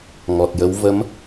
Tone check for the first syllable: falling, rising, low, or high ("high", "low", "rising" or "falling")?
low